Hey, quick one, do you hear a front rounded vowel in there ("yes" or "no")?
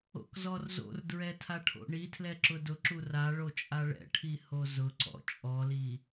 no